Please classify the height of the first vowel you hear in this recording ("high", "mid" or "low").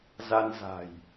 low